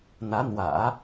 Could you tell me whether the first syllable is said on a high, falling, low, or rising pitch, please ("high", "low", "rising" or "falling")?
rising